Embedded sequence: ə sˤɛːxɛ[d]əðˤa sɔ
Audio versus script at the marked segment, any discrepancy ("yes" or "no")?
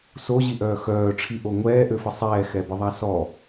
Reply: yes